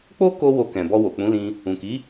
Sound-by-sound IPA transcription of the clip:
k͡p o˦ k o˦ w o˧ k ɛ̃˨ b ɔ˧ w o˨ k͡p ũ˨˦ l ĩ˧ | ũ˨ k i˨˦

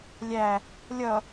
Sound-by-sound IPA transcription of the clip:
lʲ æ | lʲ ʌ

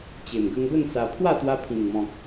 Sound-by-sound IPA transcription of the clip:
t͡ɕ e˨˩ m ɡ ə˧ ŋ b ə˥˧ n s a˧ pʰ w a˥˧ t̪ w a˧ pʰ ĩ˨˩ ŋ m ɔ̃˨ k̚

